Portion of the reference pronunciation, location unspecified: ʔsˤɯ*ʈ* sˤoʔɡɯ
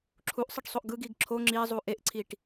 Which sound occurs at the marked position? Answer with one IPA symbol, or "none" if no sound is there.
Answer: ʈ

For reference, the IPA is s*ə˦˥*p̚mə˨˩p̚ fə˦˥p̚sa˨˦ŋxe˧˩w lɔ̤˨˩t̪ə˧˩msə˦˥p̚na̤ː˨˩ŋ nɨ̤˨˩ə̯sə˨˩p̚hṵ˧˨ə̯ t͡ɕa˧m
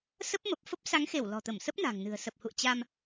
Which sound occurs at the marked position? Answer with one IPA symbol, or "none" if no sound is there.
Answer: ə˦˥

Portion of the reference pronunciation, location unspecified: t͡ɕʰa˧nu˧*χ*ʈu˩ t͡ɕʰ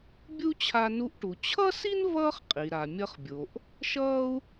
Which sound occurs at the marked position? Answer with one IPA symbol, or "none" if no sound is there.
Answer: ʔ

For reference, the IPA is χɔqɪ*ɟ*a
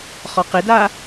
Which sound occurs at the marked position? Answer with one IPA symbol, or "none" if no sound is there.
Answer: d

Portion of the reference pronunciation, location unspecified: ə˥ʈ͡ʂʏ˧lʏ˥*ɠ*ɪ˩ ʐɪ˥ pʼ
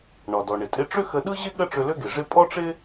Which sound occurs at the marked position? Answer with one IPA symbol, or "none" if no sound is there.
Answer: ɡ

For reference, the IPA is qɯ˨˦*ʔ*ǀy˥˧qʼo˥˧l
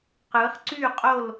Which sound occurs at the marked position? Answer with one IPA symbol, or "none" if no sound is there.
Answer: χ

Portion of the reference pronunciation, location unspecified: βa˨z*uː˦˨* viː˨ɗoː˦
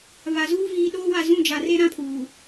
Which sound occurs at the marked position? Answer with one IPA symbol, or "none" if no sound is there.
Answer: uː˦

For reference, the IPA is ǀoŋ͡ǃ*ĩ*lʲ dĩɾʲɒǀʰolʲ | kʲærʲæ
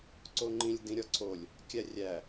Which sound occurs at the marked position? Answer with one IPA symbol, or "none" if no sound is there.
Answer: ĩ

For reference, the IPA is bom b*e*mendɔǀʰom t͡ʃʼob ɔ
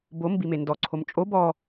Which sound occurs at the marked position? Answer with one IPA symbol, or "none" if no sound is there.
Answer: i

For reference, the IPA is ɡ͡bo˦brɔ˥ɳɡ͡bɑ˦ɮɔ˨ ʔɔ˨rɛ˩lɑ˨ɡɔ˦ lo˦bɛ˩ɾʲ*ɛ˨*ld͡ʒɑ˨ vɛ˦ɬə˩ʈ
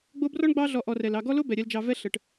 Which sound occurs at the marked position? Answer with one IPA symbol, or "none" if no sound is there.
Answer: ɛ˨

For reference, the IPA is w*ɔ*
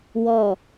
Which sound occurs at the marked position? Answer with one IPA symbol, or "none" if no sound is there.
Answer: ɔ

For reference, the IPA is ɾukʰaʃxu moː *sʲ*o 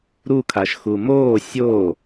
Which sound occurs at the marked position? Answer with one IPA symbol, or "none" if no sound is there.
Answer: sʲ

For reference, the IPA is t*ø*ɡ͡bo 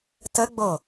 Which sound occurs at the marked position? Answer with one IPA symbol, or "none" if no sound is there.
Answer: ə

